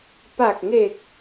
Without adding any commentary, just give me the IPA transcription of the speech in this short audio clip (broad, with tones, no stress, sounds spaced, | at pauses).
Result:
p a˨˩ k̚ ŋ e˨˩ k̚